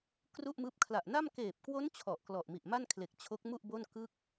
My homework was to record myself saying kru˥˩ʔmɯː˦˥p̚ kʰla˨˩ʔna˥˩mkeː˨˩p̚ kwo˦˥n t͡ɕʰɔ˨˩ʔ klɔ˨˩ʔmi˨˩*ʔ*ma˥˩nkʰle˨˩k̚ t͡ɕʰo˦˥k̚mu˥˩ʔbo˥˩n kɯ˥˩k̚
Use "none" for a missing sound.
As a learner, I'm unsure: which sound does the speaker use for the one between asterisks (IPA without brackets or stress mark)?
ʔ